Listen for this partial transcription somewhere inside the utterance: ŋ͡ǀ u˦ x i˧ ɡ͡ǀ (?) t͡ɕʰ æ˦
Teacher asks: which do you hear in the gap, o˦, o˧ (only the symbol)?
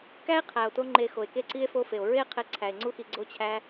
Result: o˦